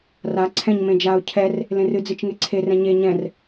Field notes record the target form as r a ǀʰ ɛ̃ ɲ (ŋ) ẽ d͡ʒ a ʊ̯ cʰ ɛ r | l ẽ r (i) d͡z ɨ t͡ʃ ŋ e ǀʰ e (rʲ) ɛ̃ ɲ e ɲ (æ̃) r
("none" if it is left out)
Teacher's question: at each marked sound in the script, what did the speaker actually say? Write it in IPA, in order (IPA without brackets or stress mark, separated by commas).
m, ɨ, r, ɛ̃